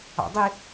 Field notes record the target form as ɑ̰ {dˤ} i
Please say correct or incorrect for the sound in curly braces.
correct